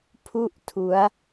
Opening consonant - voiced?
no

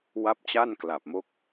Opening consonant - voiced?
yes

